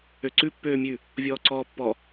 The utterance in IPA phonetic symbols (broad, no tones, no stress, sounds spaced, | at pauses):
ø ǀ ʉ pː øː mʲ ʉ | vʲ ɔː ǀ ɔː pː ɔ